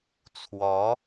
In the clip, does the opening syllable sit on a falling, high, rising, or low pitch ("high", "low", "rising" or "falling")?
rising